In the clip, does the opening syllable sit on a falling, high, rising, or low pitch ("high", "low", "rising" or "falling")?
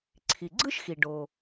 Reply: low